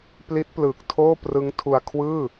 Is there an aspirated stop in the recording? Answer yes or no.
yes